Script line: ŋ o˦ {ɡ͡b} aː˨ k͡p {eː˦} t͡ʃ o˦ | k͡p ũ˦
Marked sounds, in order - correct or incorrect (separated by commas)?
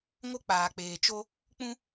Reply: incorrect, incorrect